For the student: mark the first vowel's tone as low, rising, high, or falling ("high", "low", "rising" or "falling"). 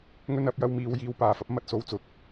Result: high